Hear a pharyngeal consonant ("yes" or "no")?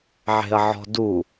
yes